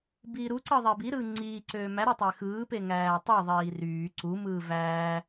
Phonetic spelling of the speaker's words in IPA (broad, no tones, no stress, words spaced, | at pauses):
biːɾuǀɯ ðˤebiɾɯː ŋ͡ǀiːǀøː mæɾy tˤæxɯːpe ŋæːtˤiðˤiː ryː ǀumɯː væː